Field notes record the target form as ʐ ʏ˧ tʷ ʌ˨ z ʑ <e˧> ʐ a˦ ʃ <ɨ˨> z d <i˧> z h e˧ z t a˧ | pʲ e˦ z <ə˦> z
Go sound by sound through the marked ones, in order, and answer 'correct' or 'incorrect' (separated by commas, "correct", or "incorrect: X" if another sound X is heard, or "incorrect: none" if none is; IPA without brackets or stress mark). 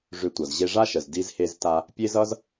correct, incorrect: ə˨, correct, incorrect: ʌ˦